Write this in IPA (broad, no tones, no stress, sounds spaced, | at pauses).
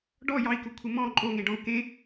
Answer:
ɖ ɔ j ɑ i̯ k u kʷʰ ɘ m ɔ̃ ǃʼ o ŋ ẽ ɖ ɔ̃ u̯ k ẽ